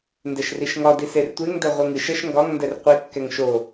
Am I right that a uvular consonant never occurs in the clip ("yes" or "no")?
no